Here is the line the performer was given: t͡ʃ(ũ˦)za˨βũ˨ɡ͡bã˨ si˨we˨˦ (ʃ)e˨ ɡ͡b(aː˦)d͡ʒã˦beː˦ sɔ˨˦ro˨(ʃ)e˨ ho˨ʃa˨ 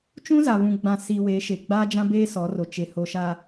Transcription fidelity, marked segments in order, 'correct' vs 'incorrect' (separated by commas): correct, correct, correct, incorrect